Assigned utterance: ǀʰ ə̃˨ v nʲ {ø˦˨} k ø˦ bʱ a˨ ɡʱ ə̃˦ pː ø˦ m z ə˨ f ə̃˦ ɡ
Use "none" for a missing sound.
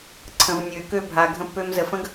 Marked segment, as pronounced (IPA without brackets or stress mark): ø˨˦